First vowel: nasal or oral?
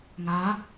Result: oral